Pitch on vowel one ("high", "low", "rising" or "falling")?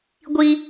high